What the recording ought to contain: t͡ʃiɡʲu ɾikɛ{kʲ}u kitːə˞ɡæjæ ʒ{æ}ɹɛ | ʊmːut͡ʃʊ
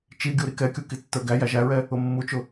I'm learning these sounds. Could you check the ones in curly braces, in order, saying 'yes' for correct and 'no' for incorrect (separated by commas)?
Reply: yes, yes